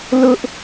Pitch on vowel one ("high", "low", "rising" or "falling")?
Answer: high